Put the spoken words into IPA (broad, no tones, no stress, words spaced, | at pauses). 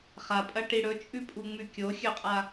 χapʼɐʈi ɽɵt͡ʃʼʉpʼuŋ͡mʉ kʲoxʲɵqʼa